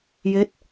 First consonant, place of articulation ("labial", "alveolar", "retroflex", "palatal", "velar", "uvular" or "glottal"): palatal